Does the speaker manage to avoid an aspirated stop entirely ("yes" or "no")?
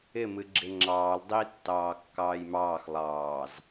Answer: yes